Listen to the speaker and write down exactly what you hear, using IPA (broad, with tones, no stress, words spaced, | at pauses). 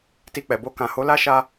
ti˧k͡pɛ˨bo˧ kã˨ho˨˦la˦ ʃa˧